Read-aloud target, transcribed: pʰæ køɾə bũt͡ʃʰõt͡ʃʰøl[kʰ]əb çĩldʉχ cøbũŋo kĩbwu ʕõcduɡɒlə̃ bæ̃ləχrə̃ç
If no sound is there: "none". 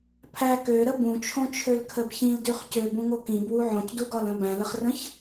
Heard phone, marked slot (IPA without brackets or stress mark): kʰ